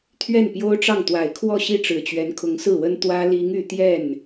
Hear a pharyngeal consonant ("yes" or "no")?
no